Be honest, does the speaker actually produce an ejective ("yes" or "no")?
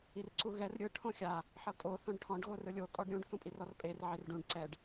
yes